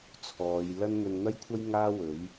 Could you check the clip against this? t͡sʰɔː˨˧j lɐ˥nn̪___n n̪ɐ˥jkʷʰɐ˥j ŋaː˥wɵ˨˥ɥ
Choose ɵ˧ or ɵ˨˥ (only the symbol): ɵ˧